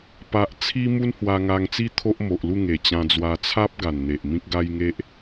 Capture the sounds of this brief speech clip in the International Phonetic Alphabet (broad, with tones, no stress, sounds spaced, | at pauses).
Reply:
p a˦ ʔ t͡sʰ i˦ m u˦ n h w a˧ ŋ a˧ ŋ t͡s i˦ t̪ʰ o˦ ʔ m o˨ ʔ l u˥˧ ŋ e˨˩ t͡ɕ ã˧ d͡z w a˧ t͡sʰ a˦ p̚ ɡ a˨˩ n n̪ e˨ ʔ m ĩ˦ k̚ ɡ a˦ j ŋ e˦ ʔ